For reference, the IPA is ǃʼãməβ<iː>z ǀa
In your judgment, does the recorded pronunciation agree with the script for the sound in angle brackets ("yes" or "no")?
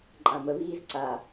yes